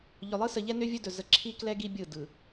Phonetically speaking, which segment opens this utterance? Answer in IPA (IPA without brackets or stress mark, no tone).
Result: ʎ